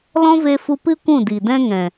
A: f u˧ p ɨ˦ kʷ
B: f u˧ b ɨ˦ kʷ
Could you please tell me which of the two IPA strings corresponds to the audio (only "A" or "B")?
A